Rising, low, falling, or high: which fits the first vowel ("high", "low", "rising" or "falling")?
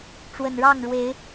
low